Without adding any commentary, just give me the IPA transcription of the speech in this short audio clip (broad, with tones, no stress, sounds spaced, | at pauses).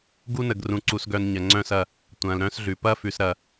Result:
ɡ u˦ n ə˨ ɡ r ũ˨ ǀ u˨ s ɡ œ˨ n ɲ ɐ˨ ŋ͡ǀ œ̃˦ s ɐ˦˨ | tʷ ɐ̃ː˨ l ɾ œ̃˦ s ɮ ʉ˨ p ɐ˦ f ʉ˨ s ɾ ɐ˦